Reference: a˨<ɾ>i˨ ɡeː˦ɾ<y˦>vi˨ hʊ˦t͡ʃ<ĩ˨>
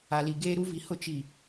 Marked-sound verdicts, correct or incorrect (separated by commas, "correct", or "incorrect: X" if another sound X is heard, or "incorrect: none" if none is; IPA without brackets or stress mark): incorrect: l, incorrect: u˦, incorrect: i˨